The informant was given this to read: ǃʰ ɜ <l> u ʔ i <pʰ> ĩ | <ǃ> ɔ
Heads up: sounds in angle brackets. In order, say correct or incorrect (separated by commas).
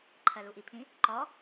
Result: correct, correct, correct